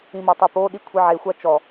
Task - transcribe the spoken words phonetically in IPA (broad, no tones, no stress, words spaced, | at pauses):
ĩmɔtˤupo ɗikʷʰiʕe xʷat͡ʃɔ